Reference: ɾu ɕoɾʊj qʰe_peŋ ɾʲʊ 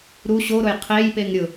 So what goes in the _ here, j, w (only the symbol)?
j